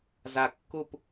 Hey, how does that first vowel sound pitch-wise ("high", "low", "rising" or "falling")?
low